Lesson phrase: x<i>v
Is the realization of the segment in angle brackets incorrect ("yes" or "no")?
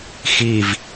no